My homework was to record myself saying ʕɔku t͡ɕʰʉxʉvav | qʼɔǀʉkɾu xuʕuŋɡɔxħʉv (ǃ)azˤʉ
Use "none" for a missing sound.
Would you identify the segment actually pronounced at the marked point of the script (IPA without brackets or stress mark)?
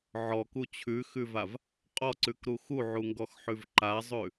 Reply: ǃ